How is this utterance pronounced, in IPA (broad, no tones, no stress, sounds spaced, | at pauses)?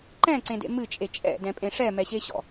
ǃ ɛ̃ ǀ ẽ d ḛ m ɨ t͡ʃʼ e t͡ʃʼ ɛ̰ d ɛ̃ pʼ ẽ ʂ ɛ m ɛ ɕ e ɕ ɔ̰